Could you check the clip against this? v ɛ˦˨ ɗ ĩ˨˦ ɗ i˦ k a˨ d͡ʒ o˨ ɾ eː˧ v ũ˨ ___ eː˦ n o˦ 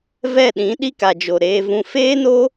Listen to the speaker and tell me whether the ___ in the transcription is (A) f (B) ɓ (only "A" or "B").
A